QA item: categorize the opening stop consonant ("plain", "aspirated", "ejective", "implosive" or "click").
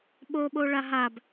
implosive